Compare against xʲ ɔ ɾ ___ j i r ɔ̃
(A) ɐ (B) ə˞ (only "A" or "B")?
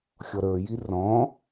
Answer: B